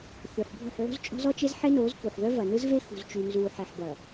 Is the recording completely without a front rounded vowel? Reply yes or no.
no